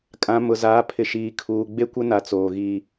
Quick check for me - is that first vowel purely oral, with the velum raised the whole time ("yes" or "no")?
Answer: no